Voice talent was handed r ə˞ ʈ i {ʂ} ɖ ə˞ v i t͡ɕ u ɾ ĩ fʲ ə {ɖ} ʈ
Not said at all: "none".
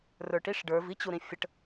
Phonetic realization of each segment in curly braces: ʂ, none

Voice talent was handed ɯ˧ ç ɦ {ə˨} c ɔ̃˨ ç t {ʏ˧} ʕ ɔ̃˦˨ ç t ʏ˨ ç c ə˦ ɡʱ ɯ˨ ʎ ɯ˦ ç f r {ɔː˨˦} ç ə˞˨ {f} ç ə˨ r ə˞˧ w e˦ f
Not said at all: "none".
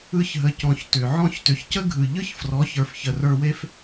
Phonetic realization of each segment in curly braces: ə˨, ʏ˨, ɔ˨˦, f

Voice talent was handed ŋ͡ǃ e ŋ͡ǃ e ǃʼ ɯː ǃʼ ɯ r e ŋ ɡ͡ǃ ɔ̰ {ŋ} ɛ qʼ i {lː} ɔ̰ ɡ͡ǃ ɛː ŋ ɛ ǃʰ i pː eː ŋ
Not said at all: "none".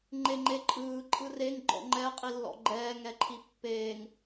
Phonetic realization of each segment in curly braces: ŋ͡ǃ, lː

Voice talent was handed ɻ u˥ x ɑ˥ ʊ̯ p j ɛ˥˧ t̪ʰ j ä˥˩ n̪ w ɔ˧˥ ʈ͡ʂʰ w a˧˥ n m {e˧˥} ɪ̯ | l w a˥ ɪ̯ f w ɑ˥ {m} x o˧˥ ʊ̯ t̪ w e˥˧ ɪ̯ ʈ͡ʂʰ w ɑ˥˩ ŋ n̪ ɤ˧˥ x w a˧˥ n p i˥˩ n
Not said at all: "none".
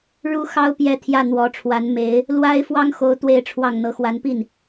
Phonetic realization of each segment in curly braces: e˧˥, ŋ

